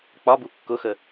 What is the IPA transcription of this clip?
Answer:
k͡p ɒ b u kː ʊ x ə

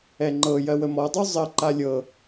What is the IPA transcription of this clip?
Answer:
ɛ ŋ͡ǃ ɤ j ɜ w ə m ɔ dˤ u zˤ ə ǃ a lʲ ɤ

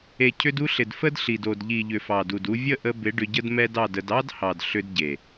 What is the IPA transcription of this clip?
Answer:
e˨ cʰ ʏ˧ d u˧ ɬ ɪ˨ d f ə˦ d ɬ i˨ d o˨ d ʎ i˨ ʎ ʏ˨ f ɑ˨ d u˨ d u˧ vʲ ə˦˨ ʔ ə˧ b ɪ˨˦ ɖ ʏ˧ ɟ ə˦ d m ɛ˦ d ɑ˦˨ d ə˧ d ɑ˦ d h ɑ˨ d ɬ ʏ˦ d ɟ e˨

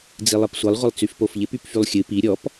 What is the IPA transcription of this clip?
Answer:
d͡z i lˠ ɨ p sʷ ɨ lˠ ʁʷ ɪ lˠ t͡s y f p o f ʎ ɪ p y p f y lˠ xʲ ɨ p i ɾʲ ɔ p

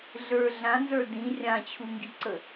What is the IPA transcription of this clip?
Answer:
ɮ ə˞ ɮ ã n z ə˞ d ĩ rʲ ã t͡ɕʰ u ŋ ɡ i ǀ ə

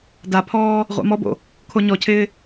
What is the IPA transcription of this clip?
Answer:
d a pʰ ɔː | ʁʷ a̰ m ɔ b o̰ | kʰ o ɲ ɔ cʰ ɪː

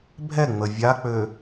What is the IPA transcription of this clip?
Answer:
bʱ ɛ ŋ͡m ə vʲ a k͡p ø

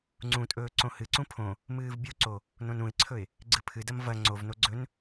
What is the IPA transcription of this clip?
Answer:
ŋ͡ǀ ũ tʼ ɵː ǀ õ h ɨ ǀ ũ pʰ õ | m ɨː v bʲ u ǀ o | n õ n ũ ɪ̯ ǀʰ ɵ ɪ̯ | ɡ͡ǀ ɨ pʰ ɨ d ɐ m v ɐ ŋ͡ǀ o v n o ɡ͡ǀ ɵ n

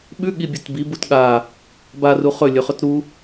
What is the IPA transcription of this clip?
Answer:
ɓ ʉ ɠ i bʲ u t b i b u t ɠ a | b a r u χ ɵ lʲ ɵ χ ɵ t ɾ u

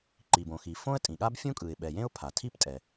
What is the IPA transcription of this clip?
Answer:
ǃ i˩ b õ˩ x i˩ f õ˥ ə̯ tʼ ĩ˩ ɠ a˥ b fʲ ũ˥ kʼ ɯ˩ ɪ̯ ɓ ɛ˩ j ẽ˥ ʊ̯ pʰ a˩ tʰ i˥ p tʼ ɛ˩

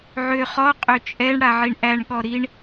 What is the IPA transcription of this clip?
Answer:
ʕ ø χ ɔ qʼ ø t͡ʃʼ ɛ ɳ ɽ a ʕ i ɳ ʔ æ ɳ ɠ ɔ ɾ i ɳ

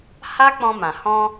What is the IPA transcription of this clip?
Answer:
h a˦ k͡p ɔ̃˧ m ã˨ h ɔ̃˧

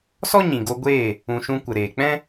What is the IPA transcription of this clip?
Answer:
s ɔ˦ ɲ ĩ˨ ɡ o˧ ɡʷ eː˦˨ | ũ˨ ʃ ũ˧ kʷ ə˨ ɾ eː˨ k͡p ɛ̃˦

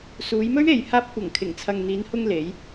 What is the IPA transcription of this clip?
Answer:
s uː˨˧ j m ɵ˥ ɥ e˨ j h aː˧ p̚ kʷ ɐ˨˩ ŋ kʰ ɪ˨˩ ŋ t͡sʰ ɐ˨ ŋ n̪ iː˨˧ n h ʊ˧ ŋ l e˨˧ j

